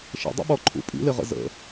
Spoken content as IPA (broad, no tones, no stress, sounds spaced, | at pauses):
ʃ ə̰ dˤ ə̰ ɓ ɔ ǃʰ ṵ pʼ ḭ l ɪ ʁ ə̰ z ə̰